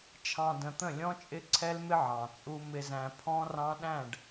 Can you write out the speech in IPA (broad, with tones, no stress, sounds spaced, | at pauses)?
t͡ʃʰ ɑ̃˨ d ə̃˨ t̪ ə̃˦˨ lʲ ɔ̃˦ t͡ʃʼ ɪ˦ ǀʰ ɛ˦ l m ɪ˦ ʕ ɑ̃˨ t͡sʼ u˦ m ɪ˦ z æ̃˦ pʰ ɔ̃˦ r ɑ̃˦ ɗ æ̃˦˨ ɖ